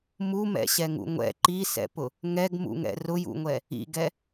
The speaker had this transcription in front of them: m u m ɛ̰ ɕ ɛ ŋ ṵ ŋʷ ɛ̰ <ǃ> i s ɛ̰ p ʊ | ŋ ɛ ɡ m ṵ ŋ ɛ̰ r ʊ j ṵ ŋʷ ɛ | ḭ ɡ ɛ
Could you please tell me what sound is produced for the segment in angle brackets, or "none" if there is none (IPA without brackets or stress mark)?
ǃ